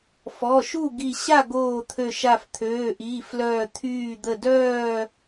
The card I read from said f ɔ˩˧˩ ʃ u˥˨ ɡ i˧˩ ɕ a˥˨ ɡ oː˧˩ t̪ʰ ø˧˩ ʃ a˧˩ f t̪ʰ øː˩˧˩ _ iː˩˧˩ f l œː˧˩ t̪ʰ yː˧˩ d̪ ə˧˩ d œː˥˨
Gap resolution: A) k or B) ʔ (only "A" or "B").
B